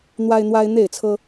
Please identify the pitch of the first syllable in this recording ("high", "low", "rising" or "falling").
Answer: high